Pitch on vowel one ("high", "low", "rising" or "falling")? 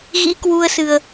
rising